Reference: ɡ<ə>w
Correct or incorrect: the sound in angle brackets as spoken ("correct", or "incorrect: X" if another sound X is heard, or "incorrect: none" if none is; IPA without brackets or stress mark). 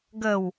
correct